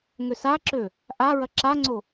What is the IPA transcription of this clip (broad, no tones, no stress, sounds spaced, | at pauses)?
ŋ ø s a ǁ ø | ʔ a ɹ ɐ ǁ a ŋ͡ǀ o